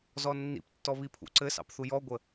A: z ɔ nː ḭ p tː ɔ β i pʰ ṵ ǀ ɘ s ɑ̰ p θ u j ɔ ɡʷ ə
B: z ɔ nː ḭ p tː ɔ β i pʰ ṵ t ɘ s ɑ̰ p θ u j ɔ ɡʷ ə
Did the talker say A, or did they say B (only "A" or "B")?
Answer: A